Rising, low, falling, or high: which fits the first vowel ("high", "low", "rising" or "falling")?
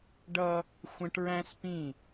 high